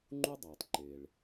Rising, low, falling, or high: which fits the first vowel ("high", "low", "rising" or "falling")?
high